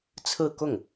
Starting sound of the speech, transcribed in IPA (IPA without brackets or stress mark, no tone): t͡sʰ